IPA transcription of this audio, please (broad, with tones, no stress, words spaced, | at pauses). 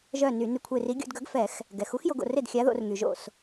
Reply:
ʒœ˥˩ny˧˩˧ ny˧˩kʷʰe˧˩ri˨˥ ɡʲo̰˧dɡœ˨˥ɡ fɛ˧˩˧x | ɡɛ˩xu˨˥xjo˧ɡ o̰˧˩re˥˩dxʲa˨˥ðo̰˧˩˧r ŋy˩ʒo̰˥˩s